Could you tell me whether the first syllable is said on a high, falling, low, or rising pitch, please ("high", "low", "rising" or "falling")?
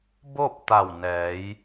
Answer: falling